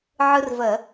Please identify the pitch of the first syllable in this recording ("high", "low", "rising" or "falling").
high